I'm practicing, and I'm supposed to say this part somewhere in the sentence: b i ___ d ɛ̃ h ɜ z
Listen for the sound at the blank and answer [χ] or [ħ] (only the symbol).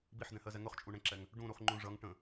ħ